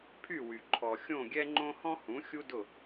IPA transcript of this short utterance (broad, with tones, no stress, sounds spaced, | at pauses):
pʰ y˦˨ w y˨ ǃʰ ɔ˨ xʲ õ˦˨ ɡʲ ɛ˦ ŋ͡ǃ õ˦ h ɔ̃˦ h ũ˨˦ xʲ u˦ d ʊ˦˨